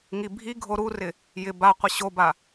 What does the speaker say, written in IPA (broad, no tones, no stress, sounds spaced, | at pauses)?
ŋ i bʱ i ɡʱ o ɾ u r ɪ | j ɪ b a qʷ ɪ ɕ o b a